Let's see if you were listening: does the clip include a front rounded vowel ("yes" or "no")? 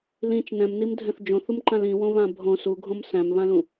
no